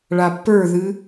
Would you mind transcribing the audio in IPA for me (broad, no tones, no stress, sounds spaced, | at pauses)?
ɭ a pː ə˞ ð ɨ